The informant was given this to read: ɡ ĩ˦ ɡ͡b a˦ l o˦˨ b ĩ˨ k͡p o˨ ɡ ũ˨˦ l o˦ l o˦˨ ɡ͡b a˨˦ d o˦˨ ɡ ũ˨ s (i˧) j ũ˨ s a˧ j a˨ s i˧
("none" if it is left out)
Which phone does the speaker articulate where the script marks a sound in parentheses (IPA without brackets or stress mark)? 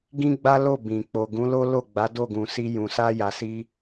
i˧